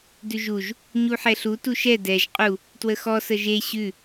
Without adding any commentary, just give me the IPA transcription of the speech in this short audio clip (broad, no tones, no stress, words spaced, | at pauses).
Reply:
dʉʒuʒ | ɲuħɛɬu tuʃɛ dɛʒ qʼu | twəxɔ səʒe ɕʉ